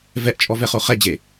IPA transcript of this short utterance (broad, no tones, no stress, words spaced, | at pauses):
vɛʔt͡ʃʼɔvɛ χoχɛd͡ʑe